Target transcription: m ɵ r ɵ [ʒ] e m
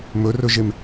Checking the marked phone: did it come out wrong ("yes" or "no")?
no